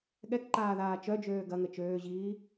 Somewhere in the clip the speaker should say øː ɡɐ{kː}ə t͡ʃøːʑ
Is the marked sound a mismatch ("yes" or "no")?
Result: yes